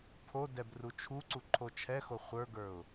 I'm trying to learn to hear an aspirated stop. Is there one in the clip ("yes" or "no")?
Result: yes